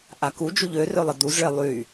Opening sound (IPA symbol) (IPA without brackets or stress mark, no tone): ʔ